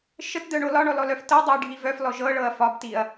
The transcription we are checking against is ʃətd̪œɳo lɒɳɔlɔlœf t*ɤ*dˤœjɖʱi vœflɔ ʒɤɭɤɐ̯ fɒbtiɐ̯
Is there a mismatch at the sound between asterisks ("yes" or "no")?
no